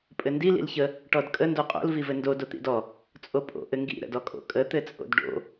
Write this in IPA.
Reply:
pʼ ɘ n d i l ḭ l ç ə | ʈ ɔ d kʼ ə n d o qʼ o̰ l v i v ɘ n d o d o t̪ ḭ d ɔ | t͡sʼ o pʼ o̰ ʔ ɘ ŋ ɡ ḭ ɾ ə̰ d ɔ kʼ o̰ kʼ ə t̪ ɘ t͡sʼ o̰ d ɖ o̰

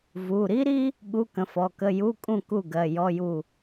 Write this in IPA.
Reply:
v u˩˧˩ ɾ i˥ ɾ i˥ | ɠ u˧˥˧ k ə̃˩˧˩ f ɔ˩˧˩ k ə˧˥˧ j u˧˥˧ kʼ ũ˥˩ k u˥˩ ɡ ɜ˩˧˩ j ɔ˧˥˧ j u˥˩

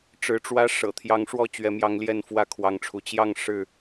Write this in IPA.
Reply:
ʈ͡ʂ ɻ̩˨˦ ʈ͡ʂ w ä˦ ʂ ɤ̰˨˩ t̪ʰ j ɑ˨˦ ŋ ʂ w ɔ˥˨ t͡ɕ ɥ ɛ˨˦ m j ɑ˨˦ ŋ l j ɛ˥˨ n f w ä˥˨ kʰ w ɑ˨˦ ŋ ʈ͡ʂʰ u˨˦ t͡ɕ j ɑ˥˨ ŋ ʂ ɻ̩˥˨

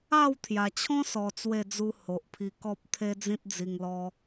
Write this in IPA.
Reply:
a˥˧ w t̪ʰ j a˨˩ t͡ɕʰ ɔ̃˦ s ɔ˨˩ t͡s w e˥˧ d͡z u˦ h o˨ ʔ pʰ i˧ k ɔ˦ p̚ t̪ʰ e˦ d͡z ĩ˦ t̚ d͡z i˨˩ ŋ l ɔ˧

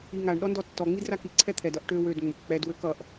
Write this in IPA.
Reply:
i ŋ a ɳ ɗ ɔ n d ɔ tː ɔ ŋ͡m i d r a k i ǀʰ ɛ t̪ʰ ɛ d ʌ ʔ ʈ ø w ø d ŋ͡m ʊ k k͡p ɛ d w ø k ʌ ʔ

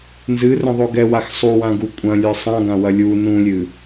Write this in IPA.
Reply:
n z ɨ r ə̃ ðˤ o ɡ ɛ w a x sˤ u w ã ɡ u kʷʼ ɐ̃ lʲ ə˞ sˤ ã ɡ ã w ɐ lʲ u n ũ lʲ ɨ

